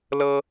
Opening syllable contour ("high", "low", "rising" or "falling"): high